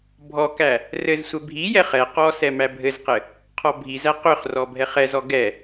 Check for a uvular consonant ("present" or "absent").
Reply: present